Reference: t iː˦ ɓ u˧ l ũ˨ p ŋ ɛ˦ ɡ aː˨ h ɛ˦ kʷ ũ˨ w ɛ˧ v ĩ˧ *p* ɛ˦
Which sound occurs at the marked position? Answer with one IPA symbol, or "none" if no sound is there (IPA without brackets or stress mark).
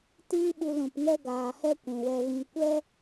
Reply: kʷ